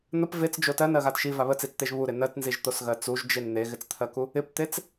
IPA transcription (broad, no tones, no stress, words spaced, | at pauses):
n̪əp vet͡sd͡ʒo tɜnɜɣat ʃiva βət͡sit͡st̪eʒ βuɾɪ nɜtnziʒt̪osɣɜ t͡suʒd͡ʒen n̪eɣɪt͡st̪ʰɜku | ɪpt̪et͡s